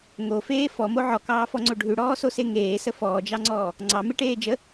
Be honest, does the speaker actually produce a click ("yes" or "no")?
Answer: yes